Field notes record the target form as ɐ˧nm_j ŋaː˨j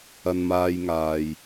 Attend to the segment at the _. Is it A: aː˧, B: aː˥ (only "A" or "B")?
A